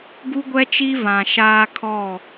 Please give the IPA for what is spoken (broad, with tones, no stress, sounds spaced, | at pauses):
ɡ u˦ ɡʷ ɛ˦ t͡ʃ i˦ v ã˨ ʃ aː˦ kʰ ɔ˦˨